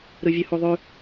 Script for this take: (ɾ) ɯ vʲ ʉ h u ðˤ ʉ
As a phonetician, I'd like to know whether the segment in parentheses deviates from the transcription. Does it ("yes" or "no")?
no